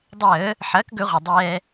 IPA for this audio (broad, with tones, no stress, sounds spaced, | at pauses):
dˤ əː˧˩˧ | ħ ɐː˩˥ k ɡ ɵ˧˩˧ ʁʷ ɐ˩ dˤ ɛː˧